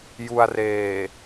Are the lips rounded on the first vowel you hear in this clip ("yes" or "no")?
yes